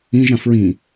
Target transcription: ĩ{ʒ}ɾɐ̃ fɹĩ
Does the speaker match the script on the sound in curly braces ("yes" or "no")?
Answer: yes